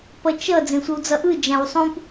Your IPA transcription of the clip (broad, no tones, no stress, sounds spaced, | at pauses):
p ʌ t͡ʃ ʌ d͡z ẽ sʷ ʌ w d͡z ʌ ʔ ɯ d͡ʒ ã w sˤ ũ p